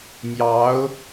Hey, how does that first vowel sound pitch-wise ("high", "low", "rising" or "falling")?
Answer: rising